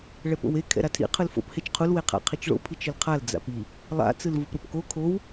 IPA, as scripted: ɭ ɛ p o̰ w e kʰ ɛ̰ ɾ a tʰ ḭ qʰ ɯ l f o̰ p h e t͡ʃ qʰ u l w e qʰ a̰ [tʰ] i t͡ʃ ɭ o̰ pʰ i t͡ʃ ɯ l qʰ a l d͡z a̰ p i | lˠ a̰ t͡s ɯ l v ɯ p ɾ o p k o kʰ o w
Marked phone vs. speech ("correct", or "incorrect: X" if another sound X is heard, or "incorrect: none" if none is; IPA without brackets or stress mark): incorrect: qʰ